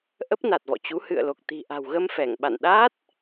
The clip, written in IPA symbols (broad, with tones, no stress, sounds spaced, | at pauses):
ʔ ə˦˥ p̚ n a˨˩ t̚ v ɔ̰˧˨ t͡ɕ u˨˦ h ɨ̰˧˨ ə̯ l o˨˩ k̚ t̪ i̤˨˩ ʔ a̤˨˩ w ɣ ə˧ m f ɛ˧˩ ŋ ɓ a̰˧˨ n ɗ aː˦˥ t̚